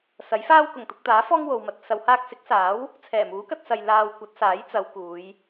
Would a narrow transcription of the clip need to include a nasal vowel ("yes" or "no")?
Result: no